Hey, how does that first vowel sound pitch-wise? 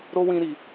high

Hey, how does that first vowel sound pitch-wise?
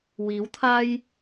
rising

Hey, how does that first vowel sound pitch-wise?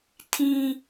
high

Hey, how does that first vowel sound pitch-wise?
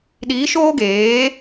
rising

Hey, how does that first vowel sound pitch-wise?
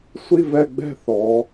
falling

